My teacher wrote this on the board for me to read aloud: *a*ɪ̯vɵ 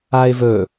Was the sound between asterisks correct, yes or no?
yes